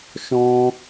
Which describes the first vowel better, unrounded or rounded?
rounded